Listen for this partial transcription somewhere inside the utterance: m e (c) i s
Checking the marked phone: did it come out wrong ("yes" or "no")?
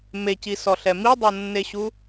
no